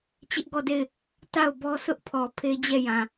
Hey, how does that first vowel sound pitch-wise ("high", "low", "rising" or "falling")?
high